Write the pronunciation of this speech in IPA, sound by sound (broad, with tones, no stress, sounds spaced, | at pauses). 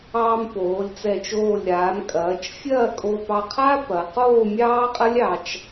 ɑː˧ m p oː˩˧ lʲ t͡s ɛ˧˩ t͡ʃ oː˧˩ lʲ ɾ aː˩˧ m kʼ ɐː˩˧ t͡ʃ fʲ ɐː˥˧ kʼ o˧ p ɑ˧ qʰ a˥ p ɐ˩˧ q oː˥˧ mʲ ɑː˥ qʼ ɐ˥ lʲ ɑ˧ t͡ʃ